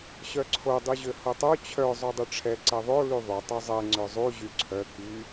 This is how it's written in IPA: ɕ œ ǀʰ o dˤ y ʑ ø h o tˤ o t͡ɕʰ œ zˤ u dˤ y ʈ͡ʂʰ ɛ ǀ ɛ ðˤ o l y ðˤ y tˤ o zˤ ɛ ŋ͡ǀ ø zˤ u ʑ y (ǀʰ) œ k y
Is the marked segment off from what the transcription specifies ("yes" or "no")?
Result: no